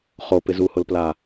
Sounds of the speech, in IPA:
χopɪ zuhʊlpla

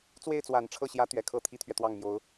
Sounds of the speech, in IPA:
t͡swe˥˩ɪ̯t͡swa˨˩nʈ͡ʂʰɤ˥˩ɕjä˧˥ t̪ɥɛ˧˥kʰɤ˥˩ t̪ʰi˥t̪ʰɥɛ˨ t̪wɑ˥˩ŋmjo˧˥ʊ̯

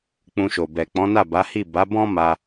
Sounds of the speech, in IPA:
k͡pũ˧ʃo˨ bɛ˨ k͡pɔ̃˨˦na˦˨ba˨˦hi˦˨ ba˨˦bɔ̃˦ ma˧

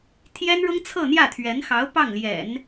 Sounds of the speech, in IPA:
t̪ʰjɛ˥nɻʊ˥ŋ t͡sʰɤ˥˧n̪jä˥˩t̪ʰɥɛ˧˥nxɑ˧˥ʊ̯ pɑ˥˩ŋljɛ̰˨˩˦n

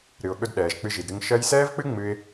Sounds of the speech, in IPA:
ɾɨ˨ʊ̯ɠɵ˧d ɗɛː˨ʒk͡pɨ˧ʒi˨dɾɨ˧ŋ ʃɜ˧jsɛː˦vk͡pɨ˦ ŋ͡mɨ˧ɪ̯

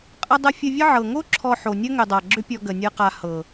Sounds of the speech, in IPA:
qʼə˧dˤə˧ fʲə˧vʲə˦ʕɤ˨ ŋo˦ ǁʰɔ˨ ħo˨nʲɐ˦ŋʏ˨dˤa˨ ɡ͡ǁʏ˧pʲɔ˨ ɡə˨ nʲɤ˨qa˨ hɤ˨

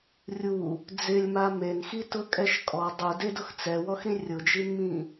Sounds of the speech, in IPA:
rʲu | d͡zɪlʲma menxitʊkʼɛʃ kʼɔ dˤudedʊx t͡sɛwɔxɾĩ rʲʊd͡ʒinmĩ

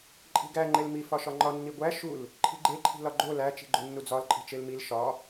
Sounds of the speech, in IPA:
ǃʼi̤ɡæ ŋ͡ǃelmi fɒʃɒŋ͡ǃɒ nːiɡʷæ ʃul | ǃʰi̤ɡ͡ǃe ǃʰi̤lɒɡ͡ǃo læ t͡ʃi̤ɡ͡ǃonːud͡zɒl ǃʼi̤t͡ʃelmil ʃɒ

